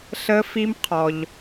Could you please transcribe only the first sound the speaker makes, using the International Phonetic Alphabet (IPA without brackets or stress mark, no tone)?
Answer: ɬ